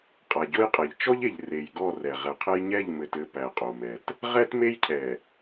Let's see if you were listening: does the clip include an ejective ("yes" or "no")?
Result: yes